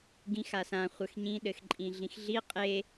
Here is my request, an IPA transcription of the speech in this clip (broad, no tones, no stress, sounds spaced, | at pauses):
ɡ ĩ x a s ã χʷ ɘ x ɲ ĩ ɗ ɘ x ǃʼ ĩ ɮ ĩ x ɮ i qʼ e